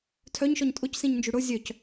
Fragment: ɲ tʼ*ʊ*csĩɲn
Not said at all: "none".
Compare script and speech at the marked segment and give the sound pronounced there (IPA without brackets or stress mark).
ʊ